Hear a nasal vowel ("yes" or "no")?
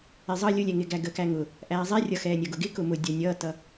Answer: no